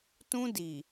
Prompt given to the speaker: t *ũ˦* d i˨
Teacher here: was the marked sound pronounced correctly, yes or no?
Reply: yes